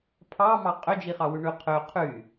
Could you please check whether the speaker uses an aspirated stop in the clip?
yes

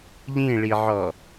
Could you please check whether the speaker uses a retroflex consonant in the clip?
yes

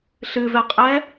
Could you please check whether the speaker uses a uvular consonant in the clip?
yes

